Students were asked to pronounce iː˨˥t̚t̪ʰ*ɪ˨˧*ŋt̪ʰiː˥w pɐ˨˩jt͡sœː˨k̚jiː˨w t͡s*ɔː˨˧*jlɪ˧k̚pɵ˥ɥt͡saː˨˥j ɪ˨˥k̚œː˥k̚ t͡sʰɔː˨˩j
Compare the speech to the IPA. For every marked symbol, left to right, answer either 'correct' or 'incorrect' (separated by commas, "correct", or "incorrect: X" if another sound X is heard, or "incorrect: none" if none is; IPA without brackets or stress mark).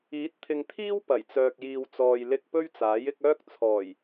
incorrect: ɪ˨, incorrect: ɔː˨